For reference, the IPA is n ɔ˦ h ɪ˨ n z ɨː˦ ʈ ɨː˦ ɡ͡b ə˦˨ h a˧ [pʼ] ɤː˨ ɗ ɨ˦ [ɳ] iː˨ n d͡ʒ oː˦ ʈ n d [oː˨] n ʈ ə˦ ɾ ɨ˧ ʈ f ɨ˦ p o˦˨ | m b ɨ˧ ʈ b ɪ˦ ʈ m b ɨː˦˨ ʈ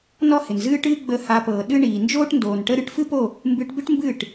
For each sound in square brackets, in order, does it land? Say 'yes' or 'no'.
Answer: no, yes, yes

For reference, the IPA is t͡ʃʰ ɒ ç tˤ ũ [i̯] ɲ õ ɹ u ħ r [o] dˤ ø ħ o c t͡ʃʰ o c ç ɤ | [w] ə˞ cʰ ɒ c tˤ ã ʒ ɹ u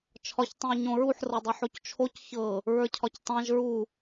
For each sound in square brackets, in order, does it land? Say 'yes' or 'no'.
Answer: yes, no, no

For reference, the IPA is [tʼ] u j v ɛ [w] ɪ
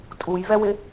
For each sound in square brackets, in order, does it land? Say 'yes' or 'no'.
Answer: yes, yes

